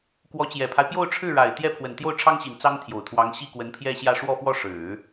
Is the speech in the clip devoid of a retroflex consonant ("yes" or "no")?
no